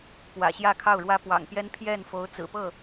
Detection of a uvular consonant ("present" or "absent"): absent